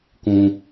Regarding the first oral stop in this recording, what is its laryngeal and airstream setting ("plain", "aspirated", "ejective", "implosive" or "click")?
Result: plain